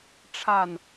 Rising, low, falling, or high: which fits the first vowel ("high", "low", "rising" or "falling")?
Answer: falling